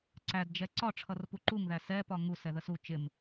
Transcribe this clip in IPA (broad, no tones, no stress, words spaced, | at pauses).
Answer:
ǀædd͡ʒɛ ǀɒ ʈ͡ʂʰʌrpuǃuŋðæ sɛ pɒŋusɛðəs u t͡ʃɪm